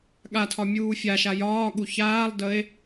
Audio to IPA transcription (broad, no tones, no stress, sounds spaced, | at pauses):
ɠ a tʰ ɒ mʲ uː fʲ a ʃ a j ɒː ɠ u ç aː lˠ d əː e̯